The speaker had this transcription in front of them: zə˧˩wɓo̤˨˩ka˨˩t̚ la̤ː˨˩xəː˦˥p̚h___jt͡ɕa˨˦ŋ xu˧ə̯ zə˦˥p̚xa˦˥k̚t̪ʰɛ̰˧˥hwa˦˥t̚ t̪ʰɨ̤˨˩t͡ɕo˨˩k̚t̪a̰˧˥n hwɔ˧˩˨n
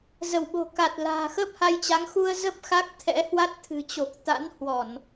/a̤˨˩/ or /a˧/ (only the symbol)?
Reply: a˧